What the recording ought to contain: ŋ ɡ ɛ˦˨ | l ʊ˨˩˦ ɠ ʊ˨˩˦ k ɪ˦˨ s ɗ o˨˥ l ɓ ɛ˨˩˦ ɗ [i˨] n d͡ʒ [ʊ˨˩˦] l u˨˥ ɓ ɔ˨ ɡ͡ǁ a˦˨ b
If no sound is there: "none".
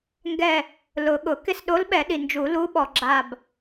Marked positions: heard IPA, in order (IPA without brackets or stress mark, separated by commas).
i˨, u˨˩˦